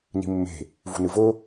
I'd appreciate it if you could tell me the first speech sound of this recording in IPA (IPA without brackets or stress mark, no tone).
n